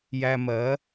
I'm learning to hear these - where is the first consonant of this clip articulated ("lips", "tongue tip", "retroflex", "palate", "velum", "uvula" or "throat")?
palate